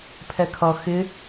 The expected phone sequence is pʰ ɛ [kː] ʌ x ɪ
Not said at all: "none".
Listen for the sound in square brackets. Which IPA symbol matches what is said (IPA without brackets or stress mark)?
kʰ